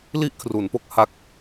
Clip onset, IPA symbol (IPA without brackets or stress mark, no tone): l